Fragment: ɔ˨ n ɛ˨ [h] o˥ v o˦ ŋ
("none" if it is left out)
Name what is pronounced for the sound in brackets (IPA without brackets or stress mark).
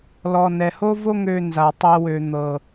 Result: h